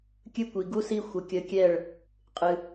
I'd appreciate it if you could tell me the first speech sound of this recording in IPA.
kʲ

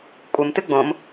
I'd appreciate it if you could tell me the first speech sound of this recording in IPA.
kʷʼ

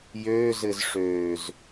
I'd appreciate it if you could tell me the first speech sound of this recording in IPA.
j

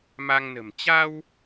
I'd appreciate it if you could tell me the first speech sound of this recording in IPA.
m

